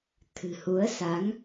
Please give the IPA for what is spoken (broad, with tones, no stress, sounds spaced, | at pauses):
t̪ʰ ɨ̤˨˩ h u˨˦ ə̯ s a˨˦ ŋ